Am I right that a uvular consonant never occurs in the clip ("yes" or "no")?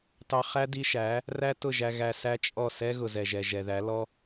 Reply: no